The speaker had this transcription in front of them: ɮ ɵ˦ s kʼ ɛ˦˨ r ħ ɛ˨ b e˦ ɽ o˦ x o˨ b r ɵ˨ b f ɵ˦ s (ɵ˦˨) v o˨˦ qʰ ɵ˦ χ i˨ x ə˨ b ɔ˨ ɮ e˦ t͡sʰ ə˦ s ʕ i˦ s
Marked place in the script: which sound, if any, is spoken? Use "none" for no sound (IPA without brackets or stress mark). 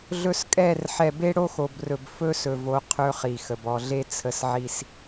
ɵ˨